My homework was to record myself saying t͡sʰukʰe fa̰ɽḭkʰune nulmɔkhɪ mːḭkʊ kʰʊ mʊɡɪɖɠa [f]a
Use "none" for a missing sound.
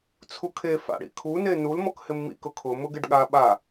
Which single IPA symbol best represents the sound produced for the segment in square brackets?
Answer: ɓ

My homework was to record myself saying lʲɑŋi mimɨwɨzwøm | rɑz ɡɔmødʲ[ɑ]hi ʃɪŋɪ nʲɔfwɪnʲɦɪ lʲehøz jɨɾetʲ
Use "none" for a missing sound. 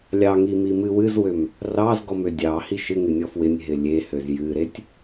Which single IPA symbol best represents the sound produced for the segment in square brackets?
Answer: ɑ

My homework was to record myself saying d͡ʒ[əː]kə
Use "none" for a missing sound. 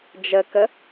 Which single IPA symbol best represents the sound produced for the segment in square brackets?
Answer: ə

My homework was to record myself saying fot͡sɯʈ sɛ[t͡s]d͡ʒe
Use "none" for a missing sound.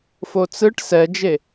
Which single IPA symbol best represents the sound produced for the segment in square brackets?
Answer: none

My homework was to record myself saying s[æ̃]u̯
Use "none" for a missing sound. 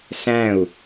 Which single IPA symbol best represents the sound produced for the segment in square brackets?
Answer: æ̃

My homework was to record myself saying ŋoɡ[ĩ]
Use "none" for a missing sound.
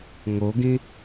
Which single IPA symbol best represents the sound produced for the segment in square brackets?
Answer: ĩ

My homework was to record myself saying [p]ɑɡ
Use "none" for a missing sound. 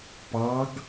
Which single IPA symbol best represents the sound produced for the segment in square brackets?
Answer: p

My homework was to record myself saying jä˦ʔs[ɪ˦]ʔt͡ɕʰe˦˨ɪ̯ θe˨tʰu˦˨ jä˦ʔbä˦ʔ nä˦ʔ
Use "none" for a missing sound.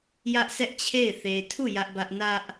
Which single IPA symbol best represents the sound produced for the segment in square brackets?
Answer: ɛ˦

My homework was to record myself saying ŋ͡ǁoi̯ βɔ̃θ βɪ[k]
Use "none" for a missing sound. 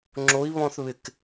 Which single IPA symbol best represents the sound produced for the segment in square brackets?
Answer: k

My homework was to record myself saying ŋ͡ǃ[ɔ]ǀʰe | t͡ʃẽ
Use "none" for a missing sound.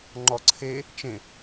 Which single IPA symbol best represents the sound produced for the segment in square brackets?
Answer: ɔ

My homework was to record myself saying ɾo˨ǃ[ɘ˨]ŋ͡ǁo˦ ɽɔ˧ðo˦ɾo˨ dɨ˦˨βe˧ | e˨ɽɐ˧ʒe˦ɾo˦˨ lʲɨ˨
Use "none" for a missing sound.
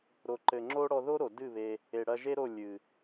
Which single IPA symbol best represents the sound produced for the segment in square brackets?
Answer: ɘ˨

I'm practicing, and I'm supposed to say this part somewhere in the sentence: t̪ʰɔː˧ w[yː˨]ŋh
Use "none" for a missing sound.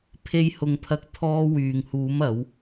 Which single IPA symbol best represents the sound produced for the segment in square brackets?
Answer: yː˨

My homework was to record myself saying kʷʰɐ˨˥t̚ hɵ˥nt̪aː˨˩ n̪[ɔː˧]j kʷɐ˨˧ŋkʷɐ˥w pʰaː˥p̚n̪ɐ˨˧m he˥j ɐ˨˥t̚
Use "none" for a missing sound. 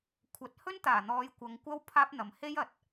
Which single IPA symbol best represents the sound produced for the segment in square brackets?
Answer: ɔː˨˧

